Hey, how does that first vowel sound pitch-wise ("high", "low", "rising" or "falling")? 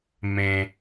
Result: low